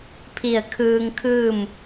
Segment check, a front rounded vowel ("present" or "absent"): absent